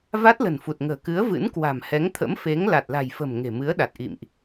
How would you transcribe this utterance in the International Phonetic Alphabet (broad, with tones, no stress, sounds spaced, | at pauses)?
v a˦˥ t̚ l ə̤˨˩ n f u˨˩ t̚ ŋ ə̤ː˨˩ k ɨ˨˦ ə̯ v ɨ̰˧˥ n k w a̤˨˩ m h ɛ˨˦ ŋ t̪ʰ ə̰˧˥ m f e˨˦ ŋ l a˨˩ t̚ l a̤˨˩ j f ə̤˨˩ m ŋ e̤˨˩ m ɨ˨˦ ə̯ ɗ a˨˩ t̚ ʔ ḭ˧˨ m ʔ